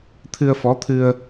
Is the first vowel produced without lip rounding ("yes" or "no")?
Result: yes